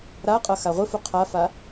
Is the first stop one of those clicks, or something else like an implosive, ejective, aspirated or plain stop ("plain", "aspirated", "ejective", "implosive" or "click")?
ejective